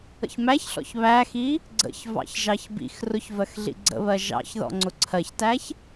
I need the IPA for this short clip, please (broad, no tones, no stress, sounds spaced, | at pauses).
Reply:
ə̰ ç m æ ç ɬ ɔ̰ ç β æ x i | ɡ͡ǀ ə̰ ç v ɑ̰ ç ʒ ɑ ç b ḭ x r ʊ ç v ɜ x ɮ ḭ ɡ͡ǀ ə̰ β ɜ ʒ ɑ̰ ç ð ɔ̰ ŋ͡ǀ ʊ ǀʰ ɜ ç t æ ç